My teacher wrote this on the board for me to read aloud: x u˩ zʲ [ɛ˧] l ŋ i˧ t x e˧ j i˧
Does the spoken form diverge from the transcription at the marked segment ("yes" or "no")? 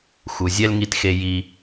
no